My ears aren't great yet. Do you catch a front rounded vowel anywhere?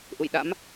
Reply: no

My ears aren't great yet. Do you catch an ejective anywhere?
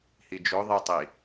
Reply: no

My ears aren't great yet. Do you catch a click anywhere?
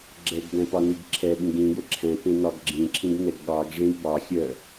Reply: yes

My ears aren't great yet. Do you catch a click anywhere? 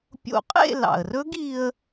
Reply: no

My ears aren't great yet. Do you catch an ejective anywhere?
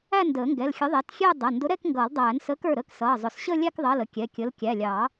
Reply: no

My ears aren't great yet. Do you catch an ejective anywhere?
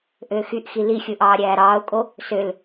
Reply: yes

